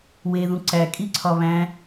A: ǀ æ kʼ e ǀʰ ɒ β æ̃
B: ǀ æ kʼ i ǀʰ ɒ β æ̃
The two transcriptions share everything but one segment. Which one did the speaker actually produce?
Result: B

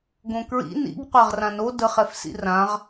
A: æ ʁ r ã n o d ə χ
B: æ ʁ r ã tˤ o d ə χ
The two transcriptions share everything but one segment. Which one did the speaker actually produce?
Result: A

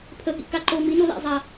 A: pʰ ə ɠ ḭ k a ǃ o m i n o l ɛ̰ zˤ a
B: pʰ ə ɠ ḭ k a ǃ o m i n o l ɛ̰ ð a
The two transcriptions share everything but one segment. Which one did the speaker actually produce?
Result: A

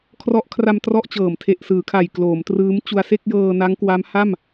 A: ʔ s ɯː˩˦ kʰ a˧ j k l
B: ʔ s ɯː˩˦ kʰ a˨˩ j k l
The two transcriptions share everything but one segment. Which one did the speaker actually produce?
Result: B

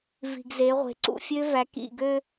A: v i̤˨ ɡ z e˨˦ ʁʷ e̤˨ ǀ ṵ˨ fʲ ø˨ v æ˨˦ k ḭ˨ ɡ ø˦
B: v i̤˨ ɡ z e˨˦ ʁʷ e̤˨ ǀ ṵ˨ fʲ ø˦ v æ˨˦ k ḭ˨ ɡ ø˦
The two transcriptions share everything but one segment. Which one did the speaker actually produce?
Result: B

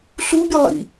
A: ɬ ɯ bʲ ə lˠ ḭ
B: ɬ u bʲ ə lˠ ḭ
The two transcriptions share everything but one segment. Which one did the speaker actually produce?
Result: B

